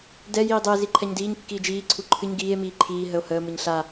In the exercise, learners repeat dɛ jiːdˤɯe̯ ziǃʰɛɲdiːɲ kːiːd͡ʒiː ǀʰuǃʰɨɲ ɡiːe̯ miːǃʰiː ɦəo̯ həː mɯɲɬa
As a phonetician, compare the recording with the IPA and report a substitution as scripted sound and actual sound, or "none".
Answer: none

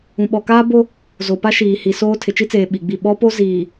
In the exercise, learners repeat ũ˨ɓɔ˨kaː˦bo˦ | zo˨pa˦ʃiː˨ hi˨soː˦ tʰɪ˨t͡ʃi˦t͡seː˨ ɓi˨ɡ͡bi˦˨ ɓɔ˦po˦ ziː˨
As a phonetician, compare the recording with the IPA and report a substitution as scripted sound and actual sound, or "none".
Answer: none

